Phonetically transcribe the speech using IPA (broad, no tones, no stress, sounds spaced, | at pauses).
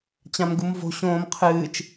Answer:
t͡ɕ ã m ɡ u m v o̤ ɕ õː m qʰ ɨː t͡ʃ